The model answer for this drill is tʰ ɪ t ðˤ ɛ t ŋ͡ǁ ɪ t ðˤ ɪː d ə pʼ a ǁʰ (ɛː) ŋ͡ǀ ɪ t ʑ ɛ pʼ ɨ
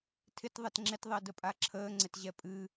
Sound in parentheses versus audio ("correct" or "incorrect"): incorrect